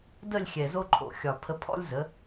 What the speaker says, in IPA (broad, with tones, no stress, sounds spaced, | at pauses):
d ə˦˨ lʲ xʲ ɛ˨ z o˦ ǃʰ o̰˨ xʲ ɒ˨ pʰ ə˧ pʰ ɔ̰˦ lʲ z ə˨˦